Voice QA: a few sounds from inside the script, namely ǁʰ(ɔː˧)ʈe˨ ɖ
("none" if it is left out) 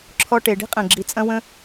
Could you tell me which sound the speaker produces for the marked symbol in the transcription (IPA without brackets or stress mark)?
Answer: ɔ˧